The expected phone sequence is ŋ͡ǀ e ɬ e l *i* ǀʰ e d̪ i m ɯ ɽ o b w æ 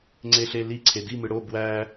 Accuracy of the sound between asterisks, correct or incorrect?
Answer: correct